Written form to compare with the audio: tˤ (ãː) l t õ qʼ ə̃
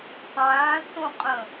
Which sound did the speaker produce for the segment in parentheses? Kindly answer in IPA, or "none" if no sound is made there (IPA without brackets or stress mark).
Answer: ãː